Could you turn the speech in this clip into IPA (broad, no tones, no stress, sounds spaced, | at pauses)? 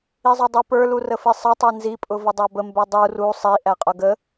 i zˤ ʊ dˤ u p ə˞ l u r ə f i sˤ ə tˤ ɛ n z i pʼ ʊ v ə dˤ æ b ə m b ɛ dˤ u r u sˤ i ʔ æ qʼ ʊ ɡ ə